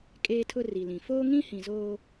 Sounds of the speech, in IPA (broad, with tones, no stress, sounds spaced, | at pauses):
kʼ eː˦ tʰ ʊ˦ r i˨ l ĩ˨ f oː˦ ŋ ĩ˦ h ĩ˨ z oː˦